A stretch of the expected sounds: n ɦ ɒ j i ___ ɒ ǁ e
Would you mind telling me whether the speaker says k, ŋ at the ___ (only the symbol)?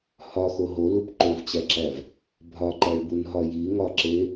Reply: ŋ